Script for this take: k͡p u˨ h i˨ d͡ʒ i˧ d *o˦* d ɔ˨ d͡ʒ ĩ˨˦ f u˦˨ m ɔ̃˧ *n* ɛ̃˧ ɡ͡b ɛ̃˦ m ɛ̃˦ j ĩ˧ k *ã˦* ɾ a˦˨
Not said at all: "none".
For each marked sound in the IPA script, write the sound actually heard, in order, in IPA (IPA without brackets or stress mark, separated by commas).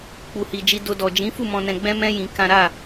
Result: o˧, n, ã˦